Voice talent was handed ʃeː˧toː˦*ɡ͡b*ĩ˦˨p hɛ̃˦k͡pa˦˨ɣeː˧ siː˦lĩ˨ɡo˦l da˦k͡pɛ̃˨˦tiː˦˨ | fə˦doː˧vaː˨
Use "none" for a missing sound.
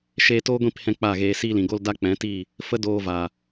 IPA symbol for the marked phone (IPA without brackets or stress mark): ɡʷ